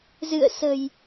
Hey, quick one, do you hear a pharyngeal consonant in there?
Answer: no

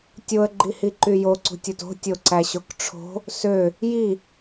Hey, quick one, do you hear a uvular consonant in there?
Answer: no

